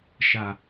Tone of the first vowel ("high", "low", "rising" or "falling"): low